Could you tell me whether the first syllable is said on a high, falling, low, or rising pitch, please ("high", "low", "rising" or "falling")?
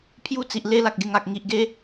falling